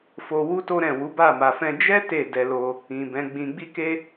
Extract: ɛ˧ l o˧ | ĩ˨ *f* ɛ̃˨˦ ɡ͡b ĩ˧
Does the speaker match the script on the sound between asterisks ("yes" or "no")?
no